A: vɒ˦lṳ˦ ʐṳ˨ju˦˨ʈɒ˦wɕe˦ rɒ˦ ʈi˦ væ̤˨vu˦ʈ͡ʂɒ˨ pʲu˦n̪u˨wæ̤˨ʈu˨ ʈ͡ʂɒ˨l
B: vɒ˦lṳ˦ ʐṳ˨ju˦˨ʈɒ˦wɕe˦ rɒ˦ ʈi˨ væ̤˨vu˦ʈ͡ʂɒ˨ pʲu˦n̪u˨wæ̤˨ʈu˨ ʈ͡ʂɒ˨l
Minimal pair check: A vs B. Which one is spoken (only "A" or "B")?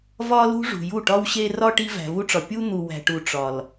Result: A